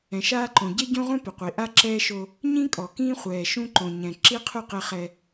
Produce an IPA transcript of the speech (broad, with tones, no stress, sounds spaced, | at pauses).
ɛ̃˨ ʃ aː˦ ǃ õ˨ ɟ e˦ ɟ õ˦ ʁʷ ɛ̃˦ p ʊ˨ qʷ i˨ ʔ a˦ ǁ ɛː˦ ʃ o˦ | ɲ ĩ˦ kʼ ɔ˨ k ĩː˦ χʷ ɛː˨ ʃ ũ˦ ǃ õ˨ ɲ ɛ̃˨ ǁ i˦ qʰ u˦˨ q ɪ˦ χ ɛ˦